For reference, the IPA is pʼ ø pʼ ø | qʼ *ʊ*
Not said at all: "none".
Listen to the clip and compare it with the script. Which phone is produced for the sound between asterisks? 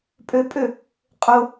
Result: ʊ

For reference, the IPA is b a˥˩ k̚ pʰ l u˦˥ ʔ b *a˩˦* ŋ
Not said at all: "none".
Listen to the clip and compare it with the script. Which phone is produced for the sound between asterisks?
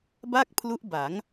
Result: a˩˦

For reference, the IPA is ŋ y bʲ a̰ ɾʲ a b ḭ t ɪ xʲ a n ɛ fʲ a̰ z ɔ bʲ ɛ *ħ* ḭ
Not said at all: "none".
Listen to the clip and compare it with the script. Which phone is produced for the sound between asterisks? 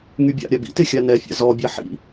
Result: ħ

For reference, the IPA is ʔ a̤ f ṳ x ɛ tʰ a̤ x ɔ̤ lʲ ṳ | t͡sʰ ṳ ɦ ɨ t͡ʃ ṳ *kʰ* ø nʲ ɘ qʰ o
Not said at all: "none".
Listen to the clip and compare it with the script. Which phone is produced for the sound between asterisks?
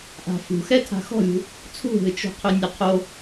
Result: qʰ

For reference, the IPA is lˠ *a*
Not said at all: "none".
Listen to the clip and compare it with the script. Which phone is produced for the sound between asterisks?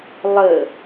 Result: ə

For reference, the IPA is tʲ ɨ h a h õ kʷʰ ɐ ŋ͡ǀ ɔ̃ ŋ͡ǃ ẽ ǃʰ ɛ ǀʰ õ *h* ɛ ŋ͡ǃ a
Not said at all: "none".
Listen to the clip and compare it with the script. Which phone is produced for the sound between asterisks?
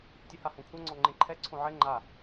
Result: ʕ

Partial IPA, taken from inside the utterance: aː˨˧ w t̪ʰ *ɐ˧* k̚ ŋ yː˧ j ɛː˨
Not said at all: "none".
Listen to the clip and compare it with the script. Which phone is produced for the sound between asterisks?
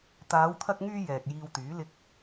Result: ɐ˧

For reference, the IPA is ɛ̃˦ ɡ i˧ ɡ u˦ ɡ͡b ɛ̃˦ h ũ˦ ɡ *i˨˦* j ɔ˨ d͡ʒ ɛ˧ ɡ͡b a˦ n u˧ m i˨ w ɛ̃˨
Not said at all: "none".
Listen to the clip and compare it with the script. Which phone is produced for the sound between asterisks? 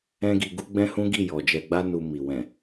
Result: i˦˨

